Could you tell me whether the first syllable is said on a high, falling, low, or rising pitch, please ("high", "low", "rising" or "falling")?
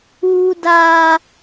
high